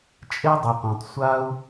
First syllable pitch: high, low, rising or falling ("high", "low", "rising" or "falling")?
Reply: high